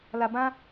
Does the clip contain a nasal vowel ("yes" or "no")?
yes